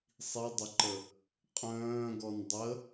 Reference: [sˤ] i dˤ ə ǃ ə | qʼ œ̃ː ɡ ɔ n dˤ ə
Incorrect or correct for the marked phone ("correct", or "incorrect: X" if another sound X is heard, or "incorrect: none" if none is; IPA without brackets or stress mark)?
correct